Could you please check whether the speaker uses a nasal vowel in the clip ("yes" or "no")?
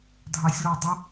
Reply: no